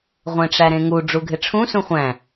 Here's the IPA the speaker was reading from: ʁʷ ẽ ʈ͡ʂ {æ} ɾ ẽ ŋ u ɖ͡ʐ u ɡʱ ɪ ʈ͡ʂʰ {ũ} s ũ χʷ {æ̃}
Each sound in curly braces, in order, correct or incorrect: correct, correct, correct

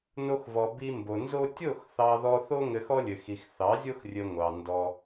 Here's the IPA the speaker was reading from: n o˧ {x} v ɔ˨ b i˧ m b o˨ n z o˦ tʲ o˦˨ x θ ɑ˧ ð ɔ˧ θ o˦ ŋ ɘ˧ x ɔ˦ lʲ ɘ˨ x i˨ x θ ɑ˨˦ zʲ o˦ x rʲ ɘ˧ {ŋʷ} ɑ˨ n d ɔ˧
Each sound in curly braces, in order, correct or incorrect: correct, correct

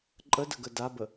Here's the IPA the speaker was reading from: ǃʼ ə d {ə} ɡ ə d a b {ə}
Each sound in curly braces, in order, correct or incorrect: correct, correct

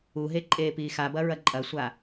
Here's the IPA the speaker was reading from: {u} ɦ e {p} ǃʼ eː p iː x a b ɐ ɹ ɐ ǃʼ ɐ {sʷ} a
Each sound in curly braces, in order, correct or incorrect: correct, incorrect: none, correct

